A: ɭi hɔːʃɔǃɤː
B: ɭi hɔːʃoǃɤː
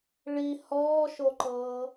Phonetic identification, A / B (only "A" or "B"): B